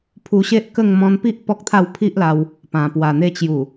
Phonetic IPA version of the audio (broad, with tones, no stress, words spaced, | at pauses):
pʰu˧ɕe˦ʔkə˥˧ŋ mɔ̃˧npi˦ʔ pɔ˦k̚t̪ʰa˥˧w pʰi˦ʔla˧w | pã˨˩ pwa˨˩n̪e˧t͡ɕju˨˩